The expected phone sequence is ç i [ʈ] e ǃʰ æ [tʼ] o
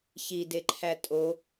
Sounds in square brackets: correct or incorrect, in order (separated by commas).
incorrect, correct